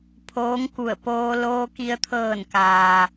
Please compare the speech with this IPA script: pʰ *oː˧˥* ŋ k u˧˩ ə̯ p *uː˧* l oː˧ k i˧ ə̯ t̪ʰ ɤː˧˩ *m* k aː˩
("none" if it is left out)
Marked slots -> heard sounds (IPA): oː˧˥, oː˧, n

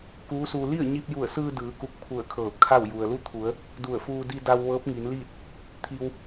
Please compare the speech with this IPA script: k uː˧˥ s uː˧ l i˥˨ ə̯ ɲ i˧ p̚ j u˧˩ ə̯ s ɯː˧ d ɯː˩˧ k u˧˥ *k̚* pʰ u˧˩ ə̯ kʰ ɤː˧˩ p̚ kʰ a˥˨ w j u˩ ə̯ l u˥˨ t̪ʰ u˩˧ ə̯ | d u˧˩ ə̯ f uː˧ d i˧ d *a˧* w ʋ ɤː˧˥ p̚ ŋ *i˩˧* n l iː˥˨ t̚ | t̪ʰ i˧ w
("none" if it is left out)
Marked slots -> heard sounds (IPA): k̚, a˧, i˩˧

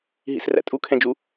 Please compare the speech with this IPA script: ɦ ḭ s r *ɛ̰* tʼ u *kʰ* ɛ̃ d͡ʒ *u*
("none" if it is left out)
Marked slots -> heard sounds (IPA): æ̰, kʰ, u

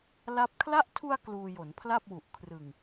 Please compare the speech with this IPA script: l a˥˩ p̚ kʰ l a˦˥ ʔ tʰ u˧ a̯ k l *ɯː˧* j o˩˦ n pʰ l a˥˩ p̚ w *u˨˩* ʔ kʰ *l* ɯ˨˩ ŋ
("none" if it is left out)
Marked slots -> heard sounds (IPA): uː˧, u˨˩, r

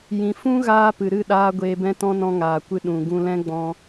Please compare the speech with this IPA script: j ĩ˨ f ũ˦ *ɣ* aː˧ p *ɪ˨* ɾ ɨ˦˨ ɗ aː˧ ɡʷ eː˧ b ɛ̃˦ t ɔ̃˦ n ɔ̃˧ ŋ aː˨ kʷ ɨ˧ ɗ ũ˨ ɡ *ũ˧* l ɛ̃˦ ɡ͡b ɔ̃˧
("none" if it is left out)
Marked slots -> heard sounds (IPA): ɣ, ɨ˨, ũ˧

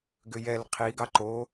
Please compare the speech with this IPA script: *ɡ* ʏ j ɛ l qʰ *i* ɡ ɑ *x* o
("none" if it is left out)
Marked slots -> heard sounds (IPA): ɡ, i, ǃ

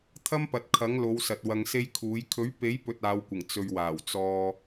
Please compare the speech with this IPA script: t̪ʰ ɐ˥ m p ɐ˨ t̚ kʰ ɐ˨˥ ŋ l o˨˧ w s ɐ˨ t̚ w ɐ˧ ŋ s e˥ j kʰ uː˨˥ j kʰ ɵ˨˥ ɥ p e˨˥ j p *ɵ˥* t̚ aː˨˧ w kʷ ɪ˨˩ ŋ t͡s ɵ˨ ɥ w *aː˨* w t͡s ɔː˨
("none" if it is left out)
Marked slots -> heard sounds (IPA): ɵ˧, aː˨˩

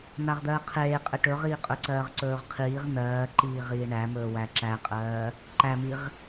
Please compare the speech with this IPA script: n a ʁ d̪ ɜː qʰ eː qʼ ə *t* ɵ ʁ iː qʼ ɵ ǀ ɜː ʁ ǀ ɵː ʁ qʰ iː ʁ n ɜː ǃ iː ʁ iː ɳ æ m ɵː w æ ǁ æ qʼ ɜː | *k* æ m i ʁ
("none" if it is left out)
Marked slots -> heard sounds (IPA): ʈ, ǃ

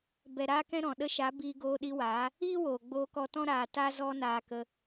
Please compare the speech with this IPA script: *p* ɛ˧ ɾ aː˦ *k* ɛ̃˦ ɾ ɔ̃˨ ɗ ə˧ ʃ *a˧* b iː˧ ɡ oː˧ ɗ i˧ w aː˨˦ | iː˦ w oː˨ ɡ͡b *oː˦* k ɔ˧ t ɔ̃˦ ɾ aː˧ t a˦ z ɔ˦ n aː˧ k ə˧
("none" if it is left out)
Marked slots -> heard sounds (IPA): b, k, a˨˦, oː˧

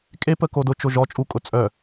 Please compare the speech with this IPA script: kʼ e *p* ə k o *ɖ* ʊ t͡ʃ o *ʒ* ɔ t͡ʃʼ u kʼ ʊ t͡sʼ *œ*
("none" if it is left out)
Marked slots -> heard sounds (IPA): p, d, ʒ, œ

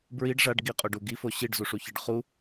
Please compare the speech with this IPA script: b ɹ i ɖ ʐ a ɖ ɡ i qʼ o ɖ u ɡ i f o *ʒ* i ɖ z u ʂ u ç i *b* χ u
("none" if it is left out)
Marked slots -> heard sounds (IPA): ɕ, ɖ

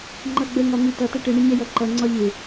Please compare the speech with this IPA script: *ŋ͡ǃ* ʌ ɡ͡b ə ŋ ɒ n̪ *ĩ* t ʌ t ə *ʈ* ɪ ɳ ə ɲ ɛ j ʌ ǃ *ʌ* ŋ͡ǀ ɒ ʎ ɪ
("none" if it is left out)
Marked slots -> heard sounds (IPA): ŋ͡ǃ, i, ʈ, ʌ

